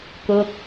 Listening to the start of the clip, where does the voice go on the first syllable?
falling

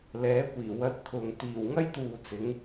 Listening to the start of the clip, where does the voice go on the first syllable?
rising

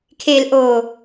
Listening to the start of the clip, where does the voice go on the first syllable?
low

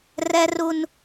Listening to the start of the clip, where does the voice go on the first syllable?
high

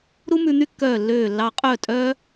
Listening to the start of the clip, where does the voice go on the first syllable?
high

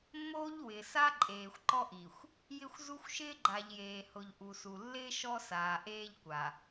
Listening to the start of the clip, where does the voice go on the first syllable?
high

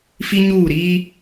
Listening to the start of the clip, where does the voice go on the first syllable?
high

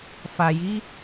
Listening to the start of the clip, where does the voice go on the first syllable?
low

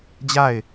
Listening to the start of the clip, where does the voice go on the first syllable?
falling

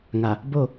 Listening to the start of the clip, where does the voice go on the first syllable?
low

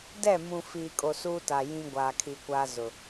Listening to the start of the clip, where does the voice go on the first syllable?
falling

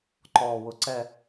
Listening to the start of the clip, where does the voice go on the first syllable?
low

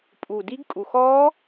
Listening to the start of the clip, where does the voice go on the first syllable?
low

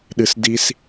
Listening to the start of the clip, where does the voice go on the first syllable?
low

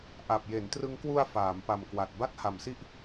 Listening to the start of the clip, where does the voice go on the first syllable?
low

